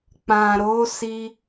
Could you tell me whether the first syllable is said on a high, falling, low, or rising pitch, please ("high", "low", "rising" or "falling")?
low